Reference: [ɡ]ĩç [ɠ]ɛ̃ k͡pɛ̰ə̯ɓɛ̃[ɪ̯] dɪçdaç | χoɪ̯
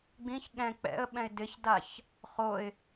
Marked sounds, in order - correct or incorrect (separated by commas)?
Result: incorrect, correct, correct